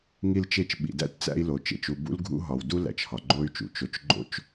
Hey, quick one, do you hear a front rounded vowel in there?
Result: yes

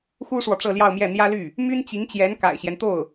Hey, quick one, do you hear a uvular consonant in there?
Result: no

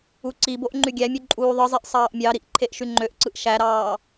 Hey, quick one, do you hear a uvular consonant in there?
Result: no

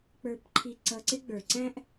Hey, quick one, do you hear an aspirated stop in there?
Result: yes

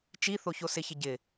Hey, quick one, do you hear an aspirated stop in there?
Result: no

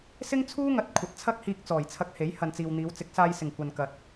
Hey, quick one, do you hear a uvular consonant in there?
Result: no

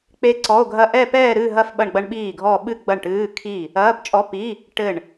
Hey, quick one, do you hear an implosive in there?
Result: yes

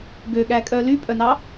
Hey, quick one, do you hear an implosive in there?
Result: yes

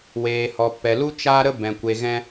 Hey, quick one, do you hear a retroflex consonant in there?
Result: no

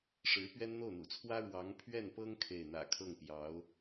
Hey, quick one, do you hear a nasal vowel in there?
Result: no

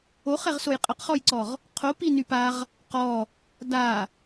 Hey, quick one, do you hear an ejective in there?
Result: yes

